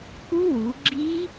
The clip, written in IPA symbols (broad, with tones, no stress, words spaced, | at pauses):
ku˦˥wu˩˧ɡ͡ǁi˦˥